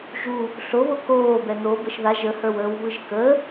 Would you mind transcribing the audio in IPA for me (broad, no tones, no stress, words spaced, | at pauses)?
ʒu | ɬoβo koːbɛ n̪o bəʃða ʒəhə˞wəːw βɯʒkə